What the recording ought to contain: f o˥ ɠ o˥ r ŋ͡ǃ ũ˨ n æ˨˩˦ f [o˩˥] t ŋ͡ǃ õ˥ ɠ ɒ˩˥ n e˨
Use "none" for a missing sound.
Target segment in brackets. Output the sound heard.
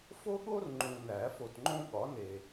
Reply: o˨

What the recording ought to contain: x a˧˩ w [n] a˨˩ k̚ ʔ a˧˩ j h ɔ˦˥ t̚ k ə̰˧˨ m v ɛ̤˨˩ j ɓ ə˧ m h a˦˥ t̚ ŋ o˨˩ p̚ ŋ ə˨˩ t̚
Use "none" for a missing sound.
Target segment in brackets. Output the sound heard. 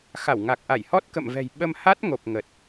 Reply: ŋ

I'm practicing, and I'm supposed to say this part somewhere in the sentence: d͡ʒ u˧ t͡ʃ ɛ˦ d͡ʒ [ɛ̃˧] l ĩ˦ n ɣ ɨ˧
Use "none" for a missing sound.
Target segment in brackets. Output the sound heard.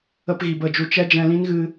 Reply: ɛ̃˧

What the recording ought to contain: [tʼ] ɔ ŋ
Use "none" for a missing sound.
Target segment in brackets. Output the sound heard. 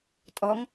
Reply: tʼ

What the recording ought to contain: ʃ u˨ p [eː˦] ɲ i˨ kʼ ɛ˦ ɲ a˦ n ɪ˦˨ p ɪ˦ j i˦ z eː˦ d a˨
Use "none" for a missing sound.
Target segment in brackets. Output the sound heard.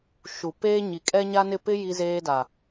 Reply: eː˦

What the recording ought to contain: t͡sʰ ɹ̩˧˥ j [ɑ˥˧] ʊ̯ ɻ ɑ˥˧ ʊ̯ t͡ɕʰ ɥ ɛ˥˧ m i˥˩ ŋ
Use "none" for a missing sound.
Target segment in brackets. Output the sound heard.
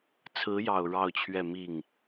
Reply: ɑ˨˩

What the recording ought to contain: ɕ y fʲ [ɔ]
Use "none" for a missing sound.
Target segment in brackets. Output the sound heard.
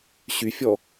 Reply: ɔ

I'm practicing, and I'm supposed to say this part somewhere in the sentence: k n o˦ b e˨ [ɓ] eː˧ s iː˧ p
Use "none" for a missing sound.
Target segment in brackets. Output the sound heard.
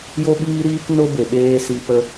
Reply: ɓ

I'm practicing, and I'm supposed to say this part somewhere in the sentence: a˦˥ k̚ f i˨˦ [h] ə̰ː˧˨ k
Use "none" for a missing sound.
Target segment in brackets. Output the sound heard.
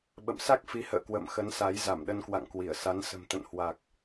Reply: h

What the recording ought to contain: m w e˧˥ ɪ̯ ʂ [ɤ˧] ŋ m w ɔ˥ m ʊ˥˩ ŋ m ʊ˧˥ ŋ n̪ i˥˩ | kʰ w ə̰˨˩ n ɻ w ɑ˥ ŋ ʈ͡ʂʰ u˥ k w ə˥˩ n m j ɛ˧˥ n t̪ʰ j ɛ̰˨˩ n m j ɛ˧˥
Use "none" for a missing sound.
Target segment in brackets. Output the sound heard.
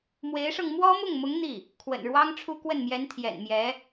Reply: ɤ˧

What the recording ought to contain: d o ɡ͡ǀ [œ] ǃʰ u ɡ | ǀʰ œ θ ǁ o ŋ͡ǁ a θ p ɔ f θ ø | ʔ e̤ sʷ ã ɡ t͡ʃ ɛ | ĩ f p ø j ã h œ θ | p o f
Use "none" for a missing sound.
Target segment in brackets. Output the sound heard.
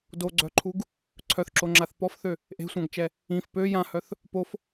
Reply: œ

